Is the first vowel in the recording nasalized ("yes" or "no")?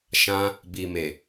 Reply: yes